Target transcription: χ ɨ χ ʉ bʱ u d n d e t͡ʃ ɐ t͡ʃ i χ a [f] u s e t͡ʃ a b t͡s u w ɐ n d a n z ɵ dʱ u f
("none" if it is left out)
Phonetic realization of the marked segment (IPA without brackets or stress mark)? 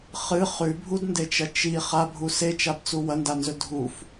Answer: bʱ